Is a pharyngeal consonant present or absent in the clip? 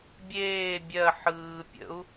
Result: present